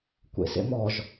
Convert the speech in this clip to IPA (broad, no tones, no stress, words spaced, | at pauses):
kʷḛsḛmɔʒ